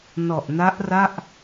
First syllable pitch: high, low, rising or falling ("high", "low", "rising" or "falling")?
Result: low